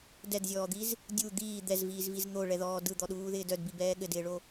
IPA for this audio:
dɛdzʲɔːd̪iz | dʲu d̪iː d̪ɛzviːzviz n̪oɭɛðɔː dɯd̪ɔɗuːðɪːd œdbibɛː ɠɘdɪːɭo

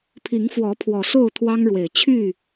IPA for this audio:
pʰi˨˦ŋfwɔ˨˦ pʰwɔ˨˩so˥˨ʊ̯ t̪ʰwɑ˦ŋɻwe˨˩ɪ̯ t͡ɕʰy˥˨

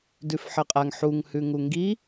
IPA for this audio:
dʉfħɜqʼaŋ ħuŋ hʉŋuŋɡi

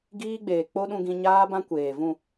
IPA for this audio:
ɡiː˦ɡ͡beː˨ k͡po˦ɗũ˧ɡĩ˧ ɲaː˦bã˦ kʷeː˨vũ˦˨

